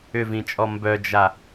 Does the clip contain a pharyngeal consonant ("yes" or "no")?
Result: no